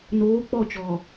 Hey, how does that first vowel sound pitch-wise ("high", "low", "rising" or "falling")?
rising